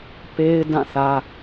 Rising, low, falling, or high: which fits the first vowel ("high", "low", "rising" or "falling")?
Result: high